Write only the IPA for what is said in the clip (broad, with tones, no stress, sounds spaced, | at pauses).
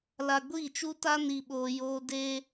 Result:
l a˧ ɡʷ iː˦˨ t͡ʃ u˦ t a˦ n i˧ ɓ oː˧ j oː˦ d e˧